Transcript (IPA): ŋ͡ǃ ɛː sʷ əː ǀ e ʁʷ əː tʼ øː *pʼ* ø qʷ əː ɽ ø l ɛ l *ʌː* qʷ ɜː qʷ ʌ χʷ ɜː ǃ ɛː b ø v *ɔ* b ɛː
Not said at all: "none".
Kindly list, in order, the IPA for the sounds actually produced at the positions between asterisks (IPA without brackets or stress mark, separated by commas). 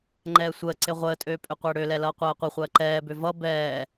pʼ, ʌː, ʌ